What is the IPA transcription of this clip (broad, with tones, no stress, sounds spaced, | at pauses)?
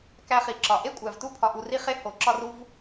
k æ˧ χ i˨ ǁ ɒ˨ ʔ e˦ kʷʼ æ˨ v t u˦ pʰ ɒ˧ ʔ u˧ r i˦ χ e˦ h o˨˦ ǁ ɒ˦ r u˦ v